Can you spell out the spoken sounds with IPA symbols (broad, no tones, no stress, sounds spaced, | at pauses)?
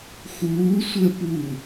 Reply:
x uː sʷ əː p u